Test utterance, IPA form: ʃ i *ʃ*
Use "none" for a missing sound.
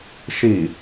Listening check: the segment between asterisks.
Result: none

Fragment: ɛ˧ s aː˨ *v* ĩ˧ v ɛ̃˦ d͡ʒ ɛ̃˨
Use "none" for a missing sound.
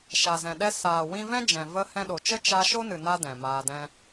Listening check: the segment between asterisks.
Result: w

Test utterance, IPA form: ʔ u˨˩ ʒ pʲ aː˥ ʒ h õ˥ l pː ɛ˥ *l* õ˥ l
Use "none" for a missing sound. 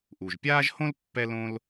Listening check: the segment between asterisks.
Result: l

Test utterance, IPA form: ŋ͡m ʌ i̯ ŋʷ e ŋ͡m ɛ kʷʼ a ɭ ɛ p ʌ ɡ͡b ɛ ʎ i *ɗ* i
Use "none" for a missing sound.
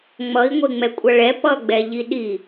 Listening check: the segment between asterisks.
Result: ɗ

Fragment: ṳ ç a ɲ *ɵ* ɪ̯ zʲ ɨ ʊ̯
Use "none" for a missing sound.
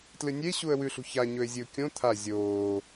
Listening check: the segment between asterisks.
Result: ɵ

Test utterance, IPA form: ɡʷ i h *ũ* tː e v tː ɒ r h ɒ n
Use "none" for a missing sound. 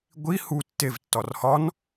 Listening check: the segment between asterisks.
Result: u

